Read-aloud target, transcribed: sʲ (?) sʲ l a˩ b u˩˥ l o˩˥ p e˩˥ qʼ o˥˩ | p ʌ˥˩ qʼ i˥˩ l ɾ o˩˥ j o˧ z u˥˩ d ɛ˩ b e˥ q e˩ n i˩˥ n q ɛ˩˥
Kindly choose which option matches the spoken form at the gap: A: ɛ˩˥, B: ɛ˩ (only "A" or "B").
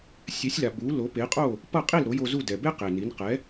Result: A